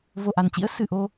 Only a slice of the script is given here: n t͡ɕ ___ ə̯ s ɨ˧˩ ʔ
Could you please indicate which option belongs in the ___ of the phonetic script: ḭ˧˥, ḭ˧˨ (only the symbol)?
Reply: ḭ˧˥